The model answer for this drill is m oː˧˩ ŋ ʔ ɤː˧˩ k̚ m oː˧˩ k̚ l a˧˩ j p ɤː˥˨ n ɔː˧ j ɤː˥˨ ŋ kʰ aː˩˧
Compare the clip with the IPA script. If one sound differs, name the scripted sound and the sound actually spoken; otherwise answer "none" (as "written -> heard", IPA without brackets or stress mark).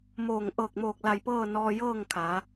none